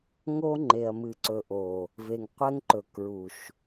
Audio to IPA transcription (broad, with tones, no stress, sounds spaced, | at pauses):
ŋ o˦ ŋ͡ǃ e˨ ɐ̯ m ɨ˨ ǀ ɵ˨ ʔ o˨ | v e˨ ŋ qʷ ɛ˦ ŋ ǃ ɵ˨ k ɹ u˨ ʃ